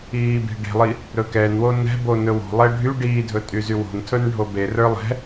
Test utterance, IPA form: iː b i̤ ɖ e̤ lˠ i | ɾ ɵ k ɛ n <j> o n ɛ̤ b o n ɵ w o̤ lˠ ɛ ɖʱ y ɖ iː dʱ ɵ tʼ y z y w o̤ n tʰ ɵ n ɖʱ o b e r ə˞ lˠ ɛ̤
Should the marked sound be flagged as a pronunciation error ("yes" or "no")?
yes